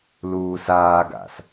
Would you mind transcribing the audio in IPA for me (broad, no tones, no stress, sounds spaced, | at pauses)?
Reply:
l uː s aː ɡ a̰ s